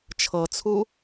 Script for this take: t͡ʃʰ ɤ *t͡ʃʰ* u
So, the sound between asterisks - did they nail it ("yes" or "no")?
no